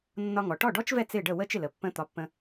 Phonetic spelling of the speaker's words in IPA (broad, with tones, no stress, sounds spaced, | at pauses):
nː ɒ˧ ŋ ɔ˩ ʈ ɔ˥˩ ɖ ɔ˥ t͡ʃ v ɛ˥˩ t͡s ɪ˥˩ ɖ ə˥˩ w ə˥˩ t͡ʃ ɪ˥˩ l ə˩ pː ə̃˧ t̪ ɒ˩˥ pː ə̃˧